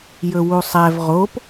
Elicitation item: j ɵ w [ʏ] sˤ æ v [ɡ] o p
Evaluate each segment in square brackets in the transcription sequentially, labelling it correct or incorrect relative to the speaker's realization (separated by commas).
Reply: incorrect, incorrect